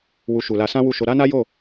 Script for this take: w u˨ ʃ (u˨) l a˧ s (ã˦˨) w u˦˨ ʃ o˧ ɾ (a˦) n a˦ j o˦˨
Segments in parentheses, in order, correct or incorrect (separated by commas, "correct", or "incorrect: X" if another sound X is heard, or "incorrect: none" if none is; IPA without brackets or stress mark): correct, incorrect: ã˦, correct